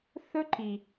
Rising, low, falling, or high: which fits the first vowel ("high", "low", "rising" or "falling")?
high